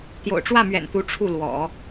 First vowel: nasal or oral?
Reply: oral